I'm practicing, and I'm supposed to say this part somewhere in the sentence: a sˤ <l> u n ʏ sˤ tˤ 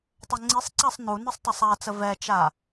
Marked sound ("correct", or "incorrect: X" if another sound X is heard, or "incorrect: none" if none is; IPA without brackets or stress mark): incorrect: n